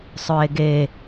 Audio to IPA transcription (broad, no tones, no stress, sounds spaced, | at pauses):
sˤ ɵ e̯ ɡ e